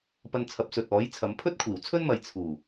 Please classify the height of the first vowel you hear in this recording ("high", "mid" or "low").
low